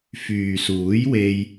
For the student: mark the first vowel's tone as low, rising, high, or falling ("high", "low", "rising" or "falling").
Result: low